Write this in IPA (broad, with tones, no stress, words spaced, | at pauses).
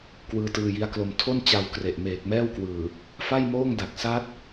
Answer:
kwɯː˦˥tɯː˧ji˦˥a̯klo˧m tʰo˥˩nt͡ɕa˧w kre˨˩ʔmeː˨˩k̚mɛː˥˩wkwɯː˨˩ | fa˥˩jmoː˥˩ŋda˨˩k̚ sa˦˥t̚